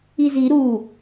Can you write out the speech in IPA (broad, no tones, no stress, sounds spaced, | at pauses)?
i z i ɾ u